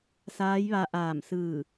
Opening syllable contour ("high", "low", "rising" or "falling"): rising